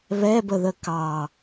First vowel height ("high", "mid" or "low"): mid